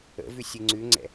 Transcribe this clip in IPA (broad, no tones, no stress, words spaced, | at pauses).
ə̰vʉ sʲɯŋ͡ǀʉŋ͡ǀɛ̰